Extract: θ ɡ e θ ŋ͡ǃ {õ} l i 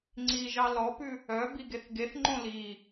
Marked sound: correct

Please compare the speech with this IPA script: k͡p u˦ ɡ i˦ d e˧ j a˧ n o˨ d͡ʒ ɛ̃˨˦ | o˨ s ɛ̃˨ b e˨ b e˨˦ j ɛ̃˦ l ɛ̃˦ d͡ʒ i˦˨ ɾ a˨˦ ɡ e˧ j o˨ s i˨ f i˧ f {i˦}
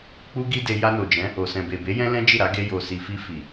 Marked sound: incorrect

